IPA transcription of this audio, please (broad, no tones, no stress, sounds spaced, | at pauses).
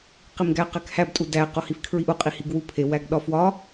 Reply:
q i m ɡ æ q æ k h æ b tʼ u d æ q o h i f kʰ ɹ i ʔ u qʼ i h i ɡ w u pʰ e w æ ɡ ɗ ɒ f w ɒ